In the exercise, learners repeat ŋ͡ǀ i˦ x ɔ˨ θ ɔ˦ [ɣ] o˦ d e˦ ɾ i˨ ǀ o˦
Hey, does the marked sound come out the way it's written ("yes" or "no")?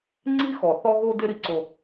yes